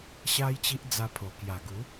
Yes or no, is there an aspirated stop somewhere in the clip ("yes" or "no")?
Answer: yes